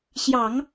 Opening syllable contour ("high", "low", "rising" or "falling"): low